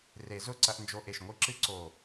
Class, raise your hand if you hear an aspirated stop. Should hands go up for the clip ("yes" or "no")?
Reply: no